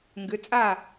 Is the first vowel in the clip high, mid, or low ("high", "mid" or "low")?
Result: high